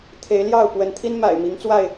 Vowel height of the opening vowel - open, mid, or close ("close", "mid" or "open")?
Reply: mid